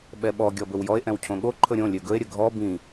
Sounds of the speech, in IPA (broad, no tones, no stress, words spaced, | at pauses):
ɓɛɓɔ ɡʲɔbɵwjɔe̯ ʔɛ̃wcʰõɠo ǃʰɵɾʲõ lʲøɡɵe̯ ɾʲəɡʱɔ bĩ